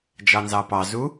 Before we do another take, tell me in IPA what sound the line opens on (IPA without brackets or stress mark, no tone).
d͡ʒ